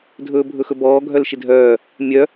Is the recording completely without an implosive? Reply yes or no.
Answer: yes